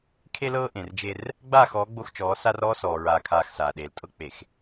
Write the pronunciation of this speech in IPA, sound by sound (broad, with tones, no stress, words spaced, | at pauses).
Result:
kʰe˦lɤː˦ ʔẽ˨rd͡ʒe˦r | ɡ͡baː˦˨xɔː˨˦ ɡ͡bo˦xt͡ʃɔː˨˦ sa˦r ɔː˦sɔː˨ ɹaː˨kʰaː˨x saː˨ɗeː˨ltʼɤ˦ k͡pe˨x